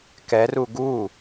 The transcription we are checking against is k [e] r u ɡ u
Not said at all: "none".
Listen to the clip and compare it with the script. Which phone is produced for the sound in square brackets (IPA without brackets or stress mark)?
ɛ